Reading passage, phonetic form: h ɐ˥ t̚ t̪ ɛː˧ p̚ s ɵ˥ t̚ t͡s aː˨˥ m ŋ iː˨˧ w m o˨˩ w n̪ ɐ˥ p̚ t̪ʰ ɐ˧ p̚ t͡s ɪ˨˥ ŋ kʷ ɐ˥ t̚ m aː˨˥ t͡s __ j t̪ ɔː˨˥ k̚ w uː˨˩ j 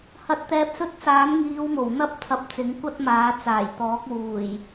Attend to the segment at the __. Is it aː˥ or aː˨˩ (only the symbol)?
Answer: aː˨˩